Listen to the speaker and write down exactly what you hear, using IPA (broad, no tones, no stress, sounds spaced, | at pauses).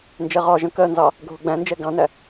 n d͡ʒ ɛ ʁ ɒ ʒ ə̃ k ɜ n z ɑ | ɡʱ ʊ ɡ͡b æ̃ n d͡ʒ ɛ ɡ ɑ̃ n æ